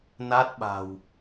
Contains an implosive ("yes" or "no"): yes